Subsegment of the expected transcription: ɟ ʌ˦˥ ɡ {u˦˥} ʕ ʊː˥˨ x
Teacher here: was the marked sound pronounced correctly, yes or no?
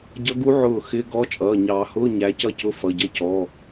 yes